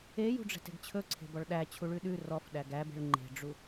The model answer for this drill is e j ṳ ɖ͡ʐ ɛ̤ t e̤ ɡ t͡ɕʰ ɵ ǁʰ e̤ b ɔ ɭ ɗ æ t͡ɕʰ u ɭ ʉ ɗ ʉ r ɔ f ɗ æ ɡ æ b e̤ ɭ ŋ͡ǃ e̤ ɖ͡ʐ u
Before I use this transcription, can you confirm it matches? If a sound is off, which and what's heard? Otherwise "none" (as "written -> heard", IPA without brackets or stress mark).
ǁʰ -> ǀʰ